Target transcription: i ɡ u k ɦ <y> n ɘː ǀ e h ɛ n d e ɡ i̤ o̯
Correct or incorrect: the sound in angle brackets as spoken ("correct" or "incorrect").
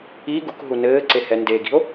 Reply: incorrect